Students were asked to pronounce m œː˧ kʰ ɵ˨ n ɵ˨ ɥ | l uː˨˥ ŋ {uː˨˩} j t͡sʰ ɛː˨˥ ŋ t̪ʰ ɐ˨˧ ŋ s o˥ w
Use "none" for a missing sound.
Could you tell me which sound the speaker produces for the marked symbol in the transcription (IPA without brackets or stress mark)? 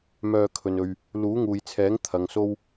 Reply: uː˨